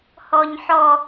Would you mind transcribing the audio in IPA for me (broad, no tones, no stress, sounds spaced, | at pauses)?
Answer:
h ɔ ɲ ħ ɔ